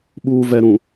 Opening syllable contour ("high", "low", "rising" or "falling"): low